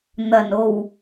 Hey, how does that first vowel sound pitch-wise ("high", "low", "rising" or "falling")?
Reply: low